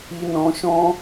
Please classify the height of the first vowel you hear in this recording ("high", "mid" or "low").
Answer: high